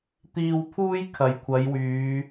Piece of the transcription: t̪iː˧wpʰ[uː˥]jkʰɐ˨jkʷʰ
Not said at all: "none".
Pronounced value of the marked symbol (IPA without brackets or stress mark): uː˥